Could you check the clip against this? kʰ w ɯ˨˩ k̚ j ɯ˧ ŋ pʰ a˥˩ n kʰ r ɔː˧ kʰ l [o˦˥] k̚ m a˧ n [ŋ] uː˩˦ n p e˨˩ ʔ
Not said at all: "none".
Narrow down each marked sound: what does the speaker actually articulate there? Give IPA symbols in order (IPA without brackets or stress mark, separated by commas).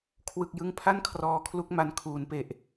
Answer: u˦˥, kʰ